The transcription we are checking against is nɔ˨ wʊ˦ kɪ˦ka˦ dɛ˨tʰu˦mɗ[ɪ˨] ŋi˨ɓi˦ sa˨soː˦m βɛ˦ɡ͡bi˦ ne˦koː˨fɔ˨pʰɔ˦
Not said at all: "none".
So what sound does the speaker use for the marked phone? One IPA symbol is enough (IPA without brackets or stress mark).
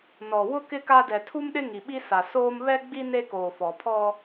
ɪ˦